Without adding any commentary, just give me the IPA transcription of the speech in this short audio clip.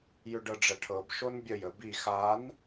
jʏɖɤɖ͡ʐɐʈʰɤb ʃonbʲəj əbi xan

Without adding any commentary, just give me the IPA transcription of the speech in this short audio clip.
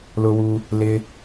lʊ˦wu˦ | lɪ˦

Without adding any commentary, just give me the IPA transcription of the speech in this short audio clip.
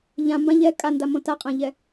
ʎãmbã ʎɛ kʼandamõ taqʼãʎɛ

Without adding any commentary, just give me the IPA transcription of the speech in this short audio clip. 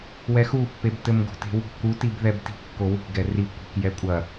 wɛxupːeb tɘmɡo̤te̤wo̤ kutib ðɛbti̤kːo wi̤ɡɛ ri kʷi̤k jɛkʷʼɐ

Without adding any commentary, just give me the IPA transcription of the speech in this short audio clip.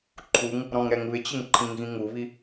ǃʰuŋ | ɾɔ̃ŋɾɛŋβɪt͡ɕɪŋ ǃʰĩŋɣĩŋuβi

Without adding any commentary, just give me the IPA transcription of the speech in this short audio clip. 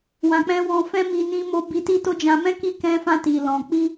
wã˨k͡pɛ̃˧ wɔ̃˧fɛ̃˦mi˧ nĩ˧mo˧ bi˧ti˦to˦ d͡ʒã˧mɛ̃˦ ki˦ kɛ̃˦fã˦ ti˧lɔ̃˧ k͡pi˦

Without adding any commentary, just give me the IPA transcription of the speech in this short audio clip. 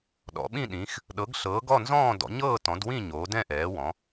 ɗɔ̰˨˦ɓĩ˥˧ɗĩ˨˦x | ɗɤ˨˦ɡɬɤː˨˦ɡɔ˥˧ nzɔ̃ː˥˧dɔ̰˨˦ ɲɤː˥˧tɔ̃˨˦dwĩ˥˧ ɲoː˨˦dɛ̃˥˧ ʔɛː˨˦wɔ̃˨˦

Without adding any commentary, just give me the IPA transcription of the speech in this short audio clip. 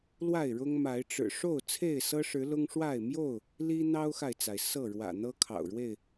lwa˥˨ɪ̯ɻʊ˦ŋ ma˨˦ɪ̯ʈ͡ʂɻ̩˨˩ ʂo˥˨ʊ̯ t͡sʰe˥˨ɪ̯sɤ˦ʂɻ̩˨˦ lʊ˦ŋʂwa˥˨ɪ̯ mjo˥˨ʊ̯ | li˦ n̪ɑ˦ʊ̯xa˨ɪ̯t͡sa˩ɪ̯ sɤ˥˨ ɻwä̰˨˩n̪ɤ˦kʰɑ̰˨˩ʊ̯ɻwe˥˨ɪ̯

